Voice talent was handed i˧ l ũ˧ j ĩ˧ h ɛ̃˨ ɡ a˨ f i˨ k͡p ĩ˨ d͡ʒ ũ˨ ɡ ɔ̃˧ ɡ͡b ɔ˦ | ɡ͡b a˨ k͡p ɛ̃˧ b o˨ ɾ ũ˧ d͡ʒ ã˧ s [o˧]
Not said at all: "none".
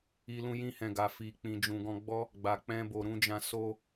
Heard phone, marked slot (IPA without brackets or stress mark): o˧